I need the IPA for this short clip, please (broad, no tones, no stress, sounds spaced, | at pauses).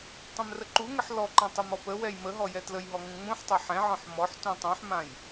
tˤ ɛ̃ m r ə ǃ u ŋ ə ħ l ɔ ǃ ã tˤ ɛ m ɔ p ə w ɛ j m ə ɦ ɔ j ɛ t l ə j ɦ ɔ ŋ ũ ŋ͡m ũ ħ tˤ a ħ ɛ̃ ʕ ɔ̃ ħ m ɔ ħ t ũ tˤ ũ ħ m ã j